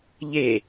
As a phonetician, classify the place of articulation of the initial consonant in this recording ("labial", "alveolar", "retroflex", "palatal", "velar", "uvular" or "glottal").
palatal